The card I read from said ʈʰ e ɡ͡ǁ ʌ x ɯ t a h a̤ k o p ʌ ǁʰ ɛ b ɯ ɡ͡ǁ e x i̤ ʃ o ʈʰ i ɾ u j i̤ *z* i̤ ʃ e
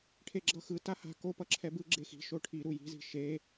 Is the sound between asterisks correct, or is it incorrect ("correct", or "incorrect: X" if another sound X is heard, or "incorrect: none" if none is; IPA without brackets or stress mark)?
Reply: correct